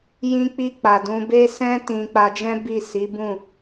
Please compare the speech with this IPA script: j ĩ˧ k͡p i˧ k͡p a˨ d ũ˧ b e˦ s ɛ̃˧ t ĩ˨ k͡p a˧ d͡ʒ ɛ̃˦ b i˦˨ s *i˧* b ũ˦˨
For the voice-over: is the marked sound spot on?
no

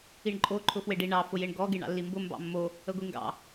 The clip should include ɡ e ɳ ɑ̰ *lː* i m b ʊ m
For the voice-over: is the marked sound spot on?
yes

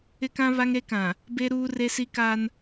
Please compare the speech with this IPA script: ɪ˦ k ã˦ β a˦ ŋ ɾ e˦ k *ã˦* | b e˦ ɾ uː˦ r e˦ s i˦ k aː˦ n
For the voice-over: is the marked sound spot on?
no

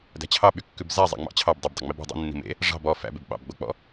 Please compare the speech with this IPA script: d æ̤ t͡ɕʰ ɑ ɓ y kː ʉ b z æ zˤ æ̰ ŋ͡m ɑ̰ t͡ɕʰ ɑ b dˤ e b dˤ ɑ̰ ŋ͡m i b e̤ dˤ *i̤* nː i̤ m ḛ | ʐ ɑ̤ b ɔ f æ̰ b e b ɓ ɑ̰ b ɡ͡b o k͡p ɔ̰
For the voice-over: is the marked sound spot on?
no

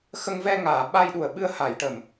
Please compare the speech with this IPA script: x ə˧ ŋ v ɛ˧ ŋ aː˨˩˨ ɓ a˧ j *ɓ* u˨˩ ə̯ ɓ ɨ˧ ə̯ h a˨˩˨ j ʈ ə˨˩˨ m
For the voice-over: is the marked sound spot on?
no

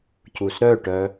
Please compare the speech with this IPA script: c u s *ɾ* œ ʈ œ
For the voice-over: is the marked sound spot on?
yes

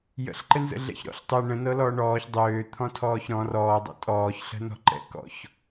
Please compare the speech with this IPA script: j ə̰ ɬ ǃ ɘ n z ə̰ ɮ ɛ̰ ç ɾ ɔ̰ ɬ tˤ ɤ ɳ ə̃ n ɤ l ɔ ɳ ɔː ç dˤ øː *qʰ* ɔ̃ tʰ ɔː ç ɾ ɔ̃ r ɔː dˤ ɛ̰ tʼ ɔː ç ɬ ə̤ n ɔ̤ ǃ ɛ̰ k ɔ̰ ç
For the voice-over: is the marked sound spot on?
no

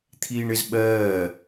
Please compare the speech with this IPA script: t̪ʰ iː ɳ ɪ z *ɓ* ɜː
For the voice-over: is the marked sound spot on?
yes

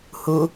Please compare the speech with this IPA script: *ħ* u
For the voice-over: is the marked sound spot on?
no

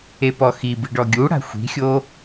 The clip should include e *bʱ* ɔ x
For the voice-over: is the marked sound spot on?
no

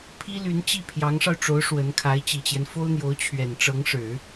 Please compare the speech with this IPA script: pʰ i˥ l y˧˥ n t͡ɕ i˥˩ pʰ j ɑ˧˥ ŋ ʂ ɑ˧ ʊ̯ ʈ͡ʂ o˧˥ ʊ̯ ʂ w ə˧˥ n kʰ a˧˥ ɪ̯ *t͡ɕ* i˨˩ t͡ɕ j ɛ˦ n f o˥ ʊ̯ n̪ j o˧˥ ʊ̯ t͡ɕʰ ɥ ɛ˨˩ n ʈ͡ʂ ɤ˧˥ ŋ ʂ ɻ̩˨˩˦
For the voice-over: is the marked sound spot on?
yes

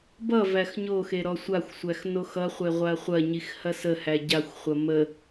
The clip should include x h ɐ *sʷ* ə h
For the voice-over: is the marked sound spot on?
no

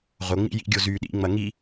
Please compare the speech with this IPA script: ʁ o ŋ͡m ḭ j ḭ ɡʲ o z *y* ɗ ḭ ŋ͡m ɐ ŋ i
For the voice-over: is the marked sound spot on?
yes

